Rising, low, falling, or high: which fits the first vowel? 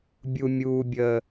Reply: low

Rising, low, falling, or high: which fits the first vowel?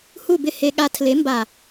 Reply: falling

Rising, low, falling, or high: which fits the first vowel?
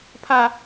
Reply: high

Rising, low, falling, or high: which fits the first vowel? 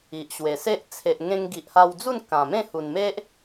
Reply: low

